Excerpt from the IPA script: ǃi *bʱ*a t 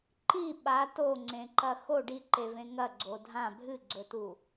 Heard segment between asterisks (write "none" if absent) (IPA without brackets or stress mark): ɓ